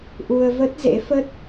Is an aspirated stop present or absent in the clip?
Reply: absent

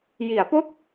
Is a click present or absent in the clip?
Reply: absent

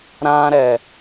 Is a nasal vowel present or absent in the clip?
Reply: present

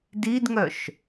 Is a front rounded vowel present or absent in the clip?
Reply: present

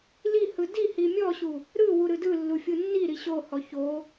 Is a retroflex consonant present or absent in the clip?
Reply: absent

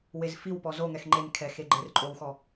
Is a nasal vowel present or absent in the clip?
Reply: absent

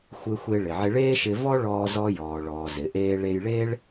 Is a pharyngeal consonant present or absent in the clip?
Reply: present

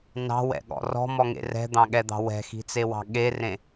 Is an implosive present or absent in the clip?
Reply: present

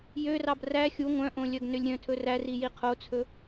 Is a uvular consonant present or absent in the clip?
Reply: present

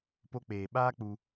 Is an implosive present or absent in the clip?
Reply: present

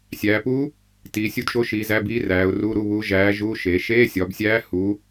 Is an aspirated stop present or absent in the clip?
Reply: absent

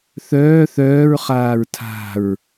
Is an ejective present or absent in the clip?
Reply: absent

